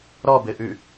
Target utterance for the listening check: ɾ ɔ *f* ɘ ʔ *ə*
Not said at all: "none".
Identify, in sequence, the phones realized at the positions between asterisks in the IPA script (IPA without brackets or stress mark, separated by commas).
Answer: b, ʉ